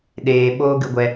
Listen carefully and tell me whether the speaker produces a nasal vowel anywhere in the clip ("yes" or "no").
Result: no